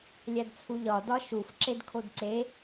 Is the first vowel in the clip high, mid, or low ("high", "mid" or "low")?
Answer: low